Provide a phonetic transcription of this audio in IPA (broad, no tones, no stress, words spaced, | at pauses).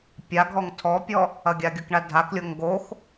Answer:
pʲaɡʱɔŋ tʰɔpʲɔ | ɐɡʲaɡʲukɳa dʱaklʲoŋ ɡox